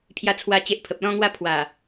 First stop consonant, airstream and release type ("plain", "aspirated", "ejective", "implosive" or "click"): aspirated